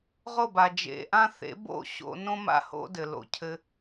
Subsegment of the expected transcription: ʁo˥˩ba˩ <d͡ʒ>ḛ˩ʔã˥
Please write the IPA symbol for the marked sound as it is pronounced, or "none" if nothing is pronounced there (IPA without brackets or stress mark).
d͡ʒ